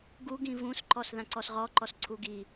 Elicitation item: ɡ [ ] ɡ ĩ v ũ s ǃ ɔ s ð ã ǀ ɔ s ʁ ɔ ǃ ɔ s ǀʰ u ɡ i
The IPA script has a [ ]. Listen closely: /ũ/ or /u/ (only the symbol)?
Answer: u